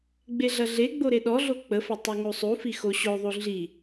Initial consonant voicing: voiced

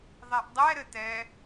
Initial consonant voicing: voiced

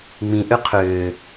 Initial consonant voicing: voiced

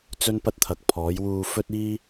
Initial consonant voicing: voiceless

